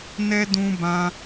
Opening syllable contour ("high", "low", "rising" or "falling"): high